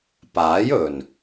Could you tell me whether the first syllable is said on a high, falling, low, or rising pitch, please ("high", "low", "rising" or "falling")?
rising